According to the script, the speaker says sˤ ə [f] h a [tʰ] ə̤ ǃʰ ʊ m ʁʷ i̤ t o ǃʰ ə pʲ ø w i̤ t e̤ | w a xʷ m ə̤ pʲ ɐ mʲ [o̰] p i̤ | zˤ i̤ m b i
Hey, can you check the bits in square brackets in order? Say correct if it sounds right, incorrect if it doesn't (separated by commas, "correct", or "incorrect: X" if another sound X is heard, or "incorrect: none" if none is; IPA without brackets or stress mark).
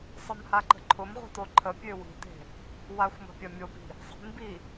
incorrect: m, incorrect: ǃ, incorrect: o